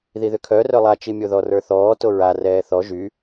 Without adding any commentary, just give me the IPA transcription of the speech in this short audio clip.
ð i ð ʏ kʰ œ r œ lˠ a t͡ʃ i mʲ o ð ɔ r ə˞ θ ɔː t o ɹ a r ɛː θ ɔ ʒ y

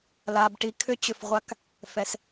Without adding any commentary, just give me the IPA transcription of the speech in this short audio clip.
l a˩ b ʈ i˩ kʰ ʏ˥ t͡ɕ ʏ˩ f ʁʷ a˥ k | f ɛ˩ s

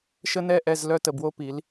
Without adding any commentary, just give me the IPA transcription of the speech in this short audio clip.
ʃ ə˦ n ɛ˦˨ ʔ ɛ˦˨ z l œ˦ t ə˨ b w o˦ p i˨˦ l

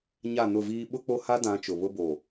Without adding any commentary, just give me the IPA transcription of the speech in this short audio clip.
ɲ a˦˨ n ʊ˦˨ v iː˦ ɓ ʊ˦ k͡p o˦ h a˦ d ã˨˦ t͡ʃ ʊ˨ β ʊ˦ b oː˨

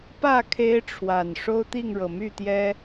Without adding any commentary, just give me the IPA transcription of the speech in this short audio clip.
p ä˥˨ kʰ e˦ ɪ̯ ʈ͡ʂʰ w a˨˩ n ʂ o˦ ʊ̯ t̪ i˥˨ ŋ ɻ ɤ˨˩ m y˥˨ t̪ j ɛ˦

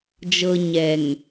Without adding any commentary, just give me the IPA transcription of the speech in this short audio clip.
d͡ʒ ɤ˨ ɲ ɛ˨ ŋ

